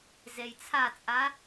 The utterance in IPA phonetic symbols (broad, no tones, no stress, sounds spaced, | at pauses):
z e j t͡sʰ a t͡sʼ a